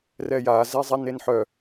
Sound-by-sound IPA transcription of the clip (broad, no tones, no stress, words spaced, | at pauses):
rɛja zɛzˤɛnenħœ